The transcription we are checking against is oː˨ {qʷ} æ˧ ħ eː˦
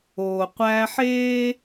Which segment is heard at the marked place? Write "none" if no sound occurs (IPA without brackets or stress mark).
qʷ